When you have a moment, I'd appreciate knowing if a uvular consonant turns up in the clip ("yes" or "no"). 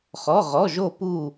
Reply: yes